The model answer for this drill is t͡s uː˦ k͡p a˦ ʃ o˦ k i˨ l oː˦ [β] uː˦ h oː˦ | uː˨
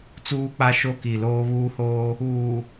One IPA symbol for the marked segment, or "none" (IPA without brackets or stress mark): β